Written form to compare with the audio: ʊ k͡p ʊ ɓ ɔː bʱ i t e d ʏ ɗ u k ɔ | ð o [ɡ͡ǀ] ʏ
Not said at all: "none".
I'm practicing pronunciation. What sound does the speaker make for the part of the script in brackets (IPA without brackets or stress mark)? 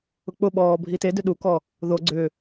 ɡ͡ǀ